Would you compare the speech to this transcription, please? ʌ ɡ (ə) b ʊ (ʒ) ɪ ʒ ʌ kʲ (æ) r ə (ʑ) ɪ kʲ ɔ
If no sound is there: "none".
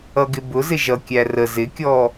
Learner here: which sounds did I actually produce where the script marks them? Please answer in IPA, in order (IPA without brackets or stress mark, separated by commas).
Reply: ɪ, z, æ, z